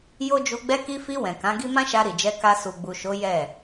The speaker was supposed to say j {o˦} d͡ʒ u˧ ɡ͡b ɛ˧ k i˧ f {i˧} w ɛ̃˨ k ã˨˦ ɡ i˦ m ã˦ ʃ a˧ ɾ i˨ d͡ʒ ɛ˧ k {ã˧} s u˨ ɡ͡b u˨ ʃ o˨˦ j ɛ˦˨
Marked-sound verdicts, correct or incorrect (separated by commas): correct, correct, incorrect